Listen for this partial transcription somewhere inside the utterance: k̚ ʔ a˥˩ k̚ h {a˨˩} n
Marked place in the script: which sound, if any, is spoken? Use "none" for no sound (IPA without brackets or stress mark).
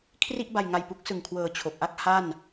a˥˩